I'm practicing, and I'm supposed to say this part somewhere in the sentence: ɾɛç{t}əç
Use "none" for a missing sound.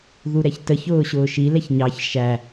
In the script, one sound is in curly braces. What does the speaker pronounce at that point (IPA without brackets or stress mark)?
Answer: t